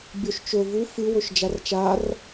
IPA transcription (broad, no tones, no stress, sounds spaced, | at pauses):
bʲ o ʃ t͡ʃ ɵ v u f ɨ w ɵ ʃ d͡ʒ a r t͡ʃ a r